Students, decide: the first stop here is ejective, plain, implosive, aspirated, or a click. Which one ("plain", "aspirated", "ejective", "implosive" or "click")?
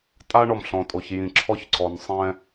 ejective